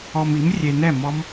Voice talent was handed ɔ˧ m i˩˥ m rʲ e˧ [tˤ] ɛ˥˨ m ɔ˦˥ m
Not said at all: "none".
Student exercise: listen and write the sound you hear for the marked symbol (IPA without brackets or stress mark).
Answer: n